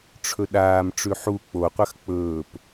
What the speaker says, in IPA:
ʈ͡ʂʰ ɵ ɗ aː m ʈ͡ʂ ʉ ħ u k͡p o qʷ ɐ x k͡p ɵː p

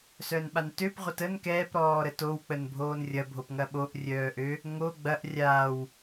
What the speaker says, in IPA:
s œː n ɓ a n t ø p ʁʷ ə t ə n k ɛː p ɾ ɔː ɾ ə t o w k͡p ə n bʱ oː n rʲ ɐ bʱ o p ŋ ɐ ɓ o ʔ rʲ œː ʔ ø | ŋ o ɡ͡b ɐ ʔ rʲ aː w

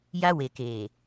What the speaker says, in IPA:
j a˦ w e˨ k eː˨

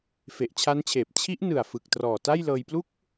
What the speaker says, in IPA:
f e˨˩ ʔ t͡ɕʰ a˦˥ n t͡ɕʰ eː˨˩ p̚ t͡ɕʰ i˦˥ ʔ n ɯ˨˩ a̯ f ɯ˨˩ k̚ t r ɔː˨˩ t a˥˩ j l ɤː˧ j p l u˥˩ k̚

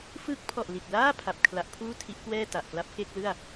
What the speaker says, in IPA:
f ɯː˦˥ k̚ pʰ ɔ˨˩ ʔ l i˨˩ t̚ l aː˥˩ pʰ a˨˩ p̚ kʰ l a˦˥ ʔ pʰ uː˥˩ tʰ i˦˥ ʔ k w ɛː˥˩ t a˨˩ ʔ k l a˦˥ p̚ k e˥˩ k̚ l ɯ˥˩ a̯

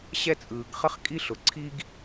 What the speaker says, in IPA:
ɕ ɛ˥ t͡sʼ ɯː˧ ɡ χ ə˥ χ kʼ i˥ ɬ ʊ˧ ǀʰ i˥ ɡ

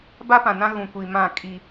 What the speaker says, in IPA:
b a˦ p ã˨ n ã˦ ɣ ũ˨ kʷ i˨ m ã˦˨ kʼ i˦

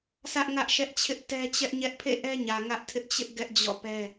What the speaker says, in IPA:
sʰ ä˦ ʔ ŋ ä˦ ʔ ʃ ɛ˦ ʔ t͡ɕʰ ɪ˦ ʔ t ɛ˦ t͡ɕ ɛ˦ ʔ ɲ ɛ˦ ʔ pʰ ḛ˦˨ ʔ ɛ˦ ɲ ä˨ ŋ ä˦ ʔ tʰ ɪ˦ ʔ t͡ɕ ɪ˦ ʔ ɡ ɛ˦ ʔ d͡ʑ ɔ̰˦˨ p ɛ˦

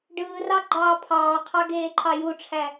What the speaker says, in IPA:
ɖ ɯː r ɑ ɡ͡ǃ ɑː pʰ ɑː qʰ ɑ ɡ eː ǃʰ ɑ j u ʈ͡ʂʰ æ

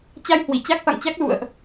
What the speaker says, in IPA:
t͡ɕ a˧ j h w i˧˩ t͡ɕ a˦˥ k̚ f a̰˧˨ ŋ t͡ɕ a˦˥ k̚ l ṵ˧˨ ə̯ ʔ

